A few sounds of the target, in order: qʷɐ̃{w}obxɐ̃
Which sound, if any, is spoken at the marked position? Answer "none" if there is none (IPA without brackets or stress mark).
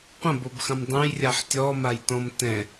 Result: b